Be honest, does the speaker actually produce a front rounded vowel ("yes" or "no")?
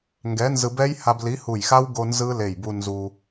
no